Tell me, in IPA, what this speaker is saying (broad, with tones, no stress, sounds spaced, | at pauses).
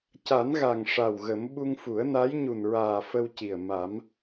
c a˨˩˦ n ɣ a˨˩ ŋ ʂ a˨˩ w ɣ ə˨˩˦ m ɓ u˧ ŋ f u˨˩˦ ə̯ n a˧˥ j ɲ u˨˩ n ɹ aː˨˩ f ə˧ w c i˨˩ ə̯ m a˨˩˦ m